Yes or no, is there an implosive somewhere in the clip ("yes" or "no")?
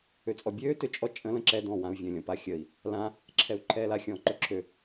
no